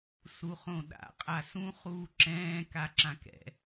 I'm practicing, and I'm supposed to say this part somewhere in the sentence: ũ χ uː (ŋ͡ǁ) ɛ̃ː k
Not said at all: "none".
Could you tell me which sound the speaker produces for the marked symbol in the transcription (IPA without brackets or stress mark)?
ǁ